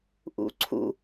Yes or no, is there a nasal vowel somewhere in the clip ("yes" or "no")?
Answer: no